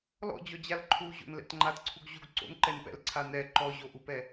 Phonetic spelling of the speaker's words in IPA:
l ɔ̰ d͡ʑ ɔ d͡ʑ a l ǃʰ u ʑ o̰ n l ɛ̰ t ŋ͡ǃ a t ǀʰ u ɡ ʑ u ɡ ǀ o̰ n ǃ ɛ n p ɛ̰ l ǀʰ a n ɛ ǃ ɔ ʑ o ʔ u p ɛ

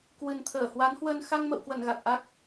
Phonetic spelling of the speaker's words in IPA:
k w ɨ˨˩ n t̪ʰ əː˧˩ h w a˨˦ n h w əː˧ n x a˧ ŋ m ə̰˧˨ w k w ə˧˩ n ɣ a˨˩ k̚ ʔ a˦˥ k̚

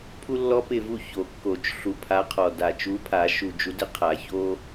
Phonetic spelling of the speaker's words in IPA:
pʰ u˦ lː ɔ˦ p ɪ˦˨ v u˦˨ ç o˨˩˦ kː o˨˩˦ t͡ʃ ɬ u˨˩ pʰ a˨˦ qʰ ɔ˨˩ d a˨˩ t͡ʃ u˨˦ pʰ a˨˩˦ ʃ u˨˩ d͡ʒ u˨˦ d ɪ˨˦ qʰ a˨˩˦ ç o˦

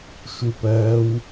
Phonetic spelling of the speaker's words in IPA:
ʃ u p ɜː w

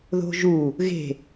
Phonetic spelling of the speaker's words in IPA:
ð o̤ ʒ u | ɣ e̤

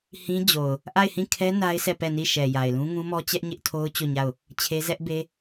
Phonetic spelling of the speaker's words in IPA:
h ĩ˦ d͡ʑ o˨ ʊ̯ | ʔ a˦˨ ɪ̯ h ĩ˦˨ kʰ ɛ˦ n a˦ ɪ̯ sʰ ɛ˦˨ p ɛ˦˨ n i˦˨ ʃ ɛ˨ j a˨ ɪ̯ l ũ˦ ŋ ũ˦ m ɔ˦ t͡ɕ ɛ˦ ʔ ɲ ɪ˦ ʔ tʰ o˦ ʊ̯ t͡ɕ o˦˨ ɲ a˦˨ ʊ̯ | t͡ɕʰ e˦ z ɛ˦ ʔ b e˦

